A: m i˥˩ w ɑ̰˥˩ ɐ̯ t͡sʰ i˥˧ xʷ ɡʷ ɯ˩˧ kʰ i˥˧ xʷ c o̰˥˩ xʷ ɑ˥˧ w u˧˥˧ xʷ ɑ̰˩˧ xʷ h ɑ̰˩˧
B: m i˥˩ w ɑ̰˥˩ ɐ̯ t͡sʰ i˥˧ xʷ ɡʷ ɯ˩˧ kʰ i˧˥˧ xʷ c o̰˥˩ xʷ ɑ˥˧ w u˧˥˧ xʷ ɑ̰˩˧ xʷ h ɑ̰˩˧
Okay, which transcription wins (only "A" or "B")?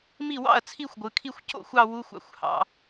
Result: A